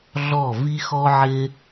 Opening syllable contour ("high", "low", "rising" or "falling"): falling